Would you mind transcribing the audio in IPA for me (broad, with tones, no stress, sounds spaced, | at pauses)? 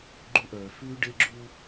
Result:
ɡ͡ǃ u˦ ʔ œː˨ f ʉː˦ ɖ e˦ ɡ͡ǁ u˦